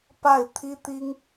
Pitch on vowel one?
falling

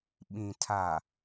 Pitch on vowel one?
low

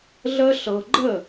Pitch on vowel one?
high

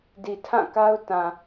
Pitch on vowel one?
low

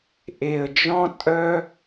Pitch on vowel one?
low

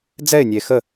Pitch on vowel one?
falling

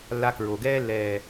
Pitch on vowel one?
high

